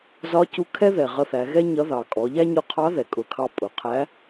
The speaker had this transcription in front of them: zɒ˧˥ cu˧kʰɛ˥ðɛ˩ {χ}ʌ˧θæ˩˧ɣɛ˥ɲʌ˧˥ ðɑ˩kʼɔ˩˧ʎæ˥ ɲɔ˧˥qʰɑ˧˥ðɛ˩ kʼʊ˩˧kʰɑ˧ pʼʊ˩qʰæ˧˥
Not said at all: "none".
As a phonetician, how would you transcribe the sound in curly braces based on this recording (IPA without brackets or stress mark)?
ʁ